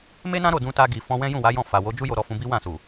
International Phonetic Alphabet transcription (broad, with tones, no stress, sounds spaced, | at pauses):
m e˦ n ã˦ ɾ o˦˨ d ũ˧ t a˧ ɡ i˨ f ɔ̃˧ w ɛ̃˦ j ũ˦˨ w a˨˦ j ɔ̃˦˨ f a˨ w o˨˦ d͡ʒ u˦ j o˧ ɾ ɔ˧ f ũ˧ b i˦ w ã˦˨ s u˨